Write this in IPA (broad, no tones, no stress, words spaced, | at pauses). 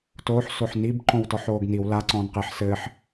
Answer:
toːħ soħnib ǃõwtɔħoːɡniw la ǀɔ̃ːnqeħ sɘːħ